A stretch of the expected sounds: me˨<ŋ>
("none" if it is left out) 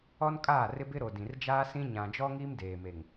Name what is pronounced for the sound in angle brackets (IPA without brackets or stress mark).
ŋ